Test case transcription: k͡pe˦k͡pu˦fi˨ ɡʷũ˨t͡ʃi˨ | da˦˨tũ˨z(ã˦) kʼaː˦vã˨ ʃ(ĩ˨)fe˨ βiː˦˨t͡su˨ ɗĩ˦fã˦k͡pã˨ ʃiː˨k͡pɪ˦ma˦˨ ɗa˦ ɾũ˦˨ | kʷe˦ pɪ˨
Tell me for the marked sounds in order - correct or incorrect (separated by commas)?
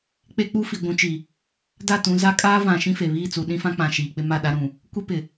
incorrect, incorrect